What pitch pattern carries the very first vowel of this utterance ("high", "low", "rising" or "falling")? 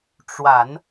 low